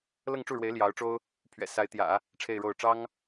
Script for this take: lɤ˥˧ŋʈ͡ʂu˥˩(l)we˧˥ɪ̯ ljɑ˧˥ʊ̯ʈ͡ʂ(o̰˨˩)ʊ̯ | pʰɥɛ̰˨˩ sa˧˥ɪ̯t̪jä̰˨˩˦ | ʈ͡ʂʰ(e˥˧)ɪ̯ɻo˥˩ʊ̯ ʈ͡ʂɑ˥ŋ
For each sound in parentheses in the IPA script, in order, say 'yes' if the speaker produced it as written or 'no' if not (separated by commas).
no, no, yes